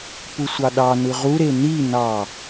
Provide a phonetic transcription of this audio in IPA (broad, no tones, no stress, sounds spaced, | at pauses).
p u sʷ ɑ ɗ ɑ n ɯ ʁ u ɾ e n i n ɑ